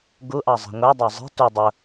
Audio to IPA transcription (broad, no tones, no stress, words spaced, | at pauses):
ɡuʔɑ zˤi̤ŋʷɛdˤɑ zˤi̤ tu dˤʊ